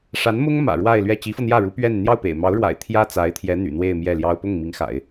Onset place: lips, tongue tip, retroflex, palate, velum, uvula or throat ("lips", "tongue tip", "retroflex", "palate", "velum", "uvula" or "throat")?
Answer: retroflex